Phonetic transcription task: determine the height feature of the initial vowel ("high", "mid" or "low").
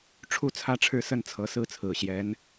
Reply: high